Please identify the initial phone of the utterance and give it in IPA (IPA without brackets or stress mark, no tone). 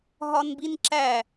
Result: ɦ